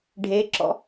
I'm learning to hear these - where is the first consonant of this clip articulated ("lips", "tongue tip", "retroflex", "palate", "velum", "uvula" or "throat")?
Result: retroflex